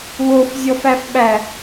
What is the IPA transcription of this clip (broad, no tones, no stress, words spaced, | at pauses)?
wofzʲɔfæfɓæ